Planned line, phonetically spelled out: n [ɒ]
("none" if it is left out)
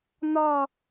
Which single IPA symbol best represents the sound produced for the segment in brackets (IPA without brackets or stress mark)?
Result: ɒ